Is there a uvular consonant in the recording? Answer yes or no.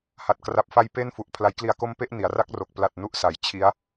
no